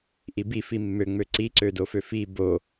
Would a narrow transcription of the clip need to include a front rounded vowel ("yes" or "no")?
yes